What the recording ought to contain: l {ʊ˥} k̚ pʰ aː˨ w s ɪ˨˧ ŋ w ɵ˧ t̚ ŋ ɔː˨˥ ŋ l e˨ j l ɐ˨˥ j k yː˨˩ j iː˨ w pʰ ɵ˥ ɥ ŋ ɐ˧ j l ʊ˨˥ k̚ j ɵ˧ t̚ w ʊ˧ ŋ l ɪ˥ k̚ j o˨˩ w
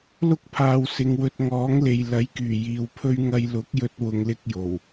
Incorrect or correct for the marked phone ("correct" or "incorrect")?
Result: correct